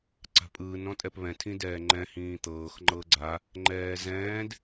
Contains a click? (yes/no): yes